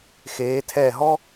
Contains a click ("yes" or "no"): no